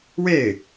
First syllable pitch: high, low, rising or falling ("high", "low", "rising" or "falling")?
falling